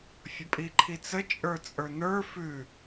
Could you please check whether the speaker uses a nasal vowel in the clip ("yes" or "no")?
no